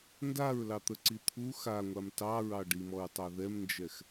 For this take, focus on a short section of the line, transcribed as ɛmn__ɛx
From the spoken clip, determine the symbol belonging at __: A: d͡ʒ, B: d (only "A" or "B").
A